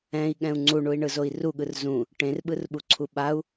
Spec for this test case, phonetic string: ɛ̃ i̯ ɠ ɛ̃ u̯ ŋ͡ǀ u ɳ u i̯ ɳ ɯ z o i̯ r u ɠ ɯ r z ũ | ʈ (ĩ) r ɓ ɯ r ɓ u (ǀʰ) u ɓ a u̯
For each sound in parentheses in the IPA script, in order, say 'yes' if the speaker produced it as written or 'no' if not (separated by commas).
no, yes